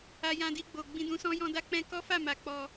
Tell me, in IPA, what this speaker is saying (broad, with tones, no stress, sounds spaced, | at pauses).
a˧ j ã˧ d i˧ ɡ͡b o˨ ɡ͡b ĩ˧ d ũ˧ s ɔ̃˦ j ɔ̃˧ d a˦ k͡p ɛ̃˦ k ɔ˦ f a˦˨ m a˨ k͡p ɔ˧